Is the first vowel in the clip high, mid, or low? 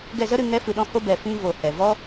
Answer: mid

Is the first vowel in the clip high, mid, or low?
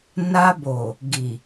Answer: low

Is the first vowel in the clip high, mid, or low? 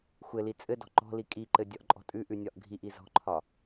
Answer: mid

